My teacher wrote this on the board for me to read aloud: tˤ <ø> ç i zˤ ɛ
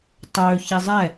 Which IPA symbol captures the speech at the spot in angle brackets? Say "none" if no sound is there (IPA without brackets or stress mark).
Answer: ø